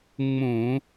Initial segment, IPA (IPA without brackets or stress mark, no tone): ŋ͡m